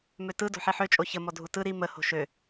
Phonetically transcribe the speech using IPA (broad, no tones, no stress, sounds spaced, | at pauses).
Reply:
m ø t ɯ d o̤ ħ i ħ ø t͡ʃʼ o ç ə m ɔ dʱ u t ɯ ɾ i m ə h o̤ ʃ ø